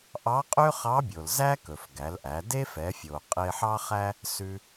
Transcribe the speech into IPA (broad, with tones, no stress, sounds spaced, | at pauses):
ʔ ɑ˧˥ qʼ ø˥ χ ɑ˧˥ bʲ o˩ l z æ˥ k ɵ˩ f ɡ æ˩˧ l ʔ æ˩˧ d e˥ f ɛ˩˧ fʲ o˩ qʼ e˧ ħ ɑ˥ χ æ˥ | s ʉ˧